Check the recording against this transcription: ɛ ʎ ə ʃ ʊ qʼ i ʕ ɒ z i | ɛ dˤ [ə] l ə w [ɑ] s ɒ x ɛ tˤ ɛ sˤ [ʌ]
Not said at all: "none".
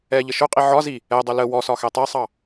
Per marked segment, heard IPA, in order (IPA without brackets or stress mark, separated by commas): ə, ɔ, ɑ